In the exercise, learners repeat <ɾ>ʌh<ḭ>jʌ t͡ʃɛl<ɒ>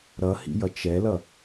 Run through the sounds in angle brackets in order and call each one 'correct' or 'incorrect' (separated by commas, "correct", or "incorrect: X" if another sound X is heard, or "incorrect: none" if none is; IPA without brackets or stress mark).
correct, correct, incorrect: ʌ